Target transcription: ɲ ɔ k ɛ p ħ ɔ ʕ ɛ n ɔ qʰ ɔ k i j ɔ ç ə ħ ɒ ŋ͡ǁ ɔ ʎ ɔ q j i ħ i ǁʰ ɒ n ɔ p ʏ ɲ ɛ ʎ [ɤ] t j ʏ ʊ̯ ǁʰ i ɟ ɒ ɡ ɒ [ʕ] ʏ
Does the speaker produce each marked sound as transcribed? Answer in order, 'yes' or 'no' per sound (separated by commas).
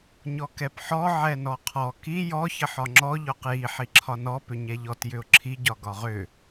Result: no, no